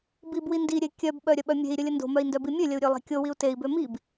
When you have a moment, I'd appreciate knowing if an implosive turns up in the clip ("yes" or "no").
yes